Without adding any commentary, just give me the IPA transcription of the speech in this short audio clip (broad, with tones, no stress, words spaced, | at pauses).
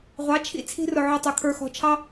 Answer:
ʁʷɑ˩˥t͡ʃʰḭ˥˩ t͡sʰi̤˧rʊ˩ ʕʊ˧ tˤʊ˩˥kʰə˞˧xɔ̤˧t͡ʃʰɑ˥